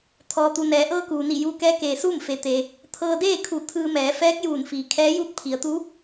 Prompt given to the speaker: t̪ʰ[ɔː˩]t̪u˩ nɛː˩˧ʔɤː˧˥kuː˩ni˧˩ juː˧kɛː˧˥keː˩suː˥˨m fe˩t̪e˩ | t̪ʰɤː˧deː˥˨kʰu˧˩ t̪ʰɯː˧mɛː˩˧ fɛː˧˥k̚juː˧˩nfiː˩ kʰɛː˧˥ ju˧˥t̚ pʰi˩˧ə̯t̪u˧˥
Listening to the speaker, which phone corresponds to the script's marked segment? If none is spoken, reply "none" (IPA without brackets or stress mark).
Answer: ɔː˩